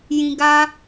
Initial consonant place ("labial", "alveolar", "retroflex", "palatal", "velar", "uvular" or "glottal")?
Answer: palatal